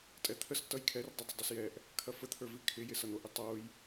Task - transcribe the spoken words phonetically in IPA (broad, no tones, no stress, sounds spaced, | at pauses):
tʼ ɛ t̪ʰ ə s t ʌ j kʰ ɛ r dˤ ɪ dˤ ə dˤ ə s j ɛ ʔ | kʰ ɐ f ə t̪ʰ ə˞ v i kʰ ɪ j ɪ s ʌ n̪ o ʔ ɪ tˤ o j